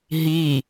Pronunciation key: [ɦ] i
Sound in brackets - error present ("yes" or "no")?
no